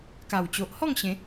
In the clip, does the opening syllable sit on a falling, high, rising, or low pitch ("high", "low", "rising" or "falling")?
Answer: low